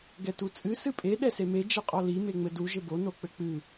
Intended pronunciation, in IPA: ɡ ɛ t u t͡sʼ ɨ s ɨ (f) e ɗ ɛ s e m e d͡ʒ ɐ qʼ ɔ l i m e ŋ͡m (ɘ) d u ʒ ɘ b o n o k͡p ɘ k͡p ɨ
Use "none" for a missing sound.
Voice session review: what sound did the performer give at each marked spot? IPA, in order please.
pʼ, ɘ

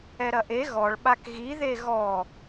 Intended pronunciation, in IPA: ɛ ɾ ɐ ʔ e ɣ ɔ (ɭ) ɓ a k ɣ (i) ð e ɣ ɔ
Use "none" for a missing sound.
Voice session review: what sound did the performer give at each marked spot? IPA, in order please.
ɭ, i

